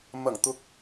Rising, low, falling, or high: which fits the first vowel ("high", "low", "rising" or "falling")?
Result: low